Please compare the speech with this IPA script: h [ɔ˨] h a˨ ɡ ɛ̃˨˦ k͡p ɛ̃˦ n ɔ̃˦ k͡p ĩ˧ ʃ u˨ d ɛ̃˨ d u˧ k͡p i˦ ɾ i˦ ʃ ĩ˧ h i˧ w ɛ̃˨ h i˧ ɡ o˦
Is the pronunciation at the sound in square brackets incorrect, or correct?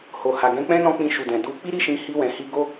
incorrect